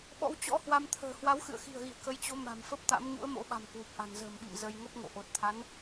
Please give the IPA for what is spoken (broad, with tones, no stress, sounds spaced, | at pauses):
ɓ ɔ̰˧˥ w t͡ɕ ɔ̰˧˥ h w a˧ m t̪ʰ ə̤ː˨˩ h w a˨˦ w x ɨ̰˧˨ ə̯ x i̤˨˩ ə̯ ɣ ḭ˧˨ ə̯ k ə˨˦ j t͡ɕ o˨˦ m a̤˨˩ m f ə˦˥ p̚ t̪ a̰˧˥ m ɲ ṵ˧˥ ə̯ m o̰˧˥ ɓ a̤˨˩ m k w u˨˩ p̚ ʔ a̤˨˩ n z ə̤ː˨˩ m ɓ ḭ˧˨ m z ə˧ j ŋ ə˦˥ p̚ ŋ o̰˧˨ ʔ o˨˩ t̚ t̪ʰ a˨˦ n